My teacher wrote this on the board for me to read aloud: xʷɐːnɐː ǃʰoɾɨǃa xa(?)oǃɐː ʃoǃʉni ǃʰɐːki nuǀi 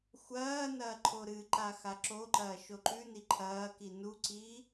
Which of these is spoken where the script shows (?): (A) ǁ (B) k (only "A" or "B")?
A